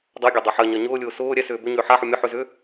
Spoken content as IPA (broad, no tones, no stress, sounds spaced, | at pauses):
dˤ ɜ ɡʲ ɒ dˤ a ħ ɜ ɲ ɜ ɲ ʊː lʲ ʊː s ʊː ɾʲ ɛ s ʏː b ʏ ɲ ʏː ħ a ħ u mʲ ʊ ħ ʏ z ʏː